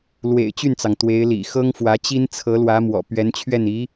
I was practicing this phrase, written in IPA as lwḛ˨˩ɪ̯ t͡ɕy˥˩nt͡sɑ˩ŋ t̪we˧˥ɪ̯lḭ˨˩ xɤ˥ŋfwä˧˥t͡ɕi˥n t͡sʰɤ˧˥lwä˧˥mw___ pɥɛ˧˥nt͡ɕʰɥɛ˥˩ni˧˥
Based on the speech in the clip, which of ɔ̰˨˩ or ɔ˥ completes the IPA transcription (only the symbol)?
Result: ɔ̰˨˩